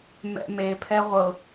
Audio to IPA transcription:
mɛ̰me pʰɛʁʷɤ

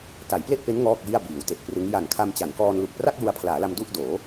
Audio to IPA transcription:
ta˩˦jple˥˩ʔpe˦˥n ŋɔː˥˩k̚ji˥˩a̯biː˩˦w te˨˩ʔprɯ˦˥ŋ ja˨˩nkʰa˧mt͡ɕa˩˦nkɔː˧n lu˨˩k̚pra˥˩k̚ ju˧a̯pʰlaː˩˦la˧m du˥˩ʔdoː˩˦

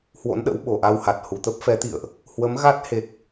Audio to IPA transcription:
hwo̰˧˥nɗə̰˧˥w ɓo˨˩ʔa˧wha˨˩t̚ hu˨˩t̪ə˦˥p̚fɛ˨˦t̪ḭ˧˨ə̯ʔ | hwə˨˦mɣa˦˥t̚he˨˩k̚

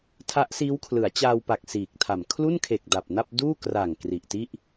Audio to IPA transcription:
tʰa˦˥ʔsiː˦˥w kʰlɯ˩˦a̯t͡ɕaː˧wpa˨˩k̚ siː˨˩k̚tʰa˨˩m kʰlu˥˩nkʰe˨˩k̚ da˨˩p̚na˥˩p̚ duː˥˩ kra˨˩ŋ kri˨˩ʔti˥˩ʔ

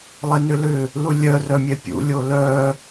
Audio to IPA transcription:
lˠɛnʏlʏ | lulʲœ rœmʲɛpʲṵ lʲolœ

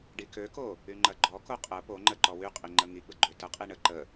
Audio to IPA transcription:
ɖikøko | yŋ͡ǃɐɡ͡ǃɔko qʼə poŋ͡ǃə ǃɔwyqʼi ŋ͡ǃəŋiɡ͡bə ɡ͡ǃøtəqʼi ɳə ǃə

